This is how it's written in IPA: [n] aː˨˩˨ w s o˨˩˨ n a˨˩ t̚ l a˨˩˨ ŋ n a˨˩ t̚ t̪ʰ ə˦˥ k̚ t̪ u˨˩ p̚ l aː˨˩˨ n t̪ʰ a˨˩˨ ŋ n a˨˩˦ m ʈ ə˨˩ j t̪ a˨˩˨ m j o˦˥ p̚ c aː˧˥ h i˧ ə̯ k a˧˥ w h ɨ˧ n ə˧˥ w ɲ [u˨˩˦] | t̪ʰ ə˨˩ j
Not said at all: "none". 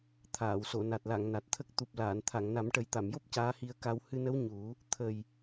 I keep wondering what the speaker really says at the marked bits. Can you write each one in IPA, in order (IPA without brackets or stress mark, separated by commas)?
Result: t̪ʰ, u˨˩˦